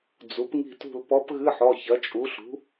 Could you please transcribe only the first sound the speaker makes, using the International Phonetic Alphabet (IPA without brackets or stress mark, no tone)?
d͡z